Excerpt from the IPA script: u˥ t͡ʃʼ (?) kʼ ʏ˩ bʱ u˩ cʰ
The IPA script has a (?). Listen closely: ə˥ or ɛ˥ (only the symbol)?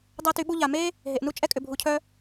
ɛ˥